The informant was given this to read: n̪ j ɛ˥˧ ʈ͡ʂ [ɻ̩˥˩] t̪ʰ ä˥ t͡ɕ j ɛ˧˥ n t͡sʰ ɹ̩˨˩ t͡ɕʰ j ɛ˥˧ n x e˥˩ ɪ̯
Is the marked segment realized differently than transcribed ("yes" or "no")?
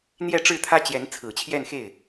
no